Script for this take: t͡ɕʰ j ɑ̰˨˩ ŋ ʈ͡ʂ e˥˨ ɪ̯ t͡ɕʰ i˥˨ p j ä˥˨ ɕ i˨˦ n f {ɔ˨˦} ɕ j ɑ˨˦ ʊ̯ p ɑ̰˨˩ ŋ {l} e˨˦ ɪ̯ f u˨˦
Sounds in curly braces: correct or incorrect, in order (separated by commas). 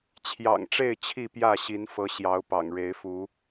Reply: incorrect, incorrect